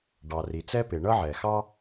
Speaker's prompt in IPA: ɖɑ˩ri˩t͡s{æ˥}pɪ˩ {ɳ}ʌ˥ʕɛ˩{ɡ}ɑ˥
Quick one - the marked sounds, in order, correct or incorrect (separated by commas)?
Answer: incorrect, correct, incorrect